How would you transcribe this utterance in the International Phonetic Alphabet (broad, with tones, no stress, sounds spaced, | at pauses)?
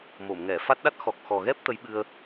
m o˨˩˨ m ŋ ɛ˨˩˨ f a˦˥ t̚ ɗ a˦˥ t̚ x ɔ˨˩ k̚ x ɔ˨˩ ɣ ɛ˦˥ p̚ t̪ ə˧˥ j ɓ ɨ˧ ə̯